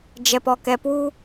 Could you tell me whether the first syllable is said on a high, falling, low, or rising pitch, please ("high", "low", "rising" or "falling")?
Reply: low